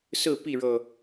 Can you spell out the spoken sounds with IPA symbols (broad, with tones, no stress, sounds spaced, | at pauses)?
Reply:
s ɹ̩˥˨ p i˥˨ ɻ ɤ˥˨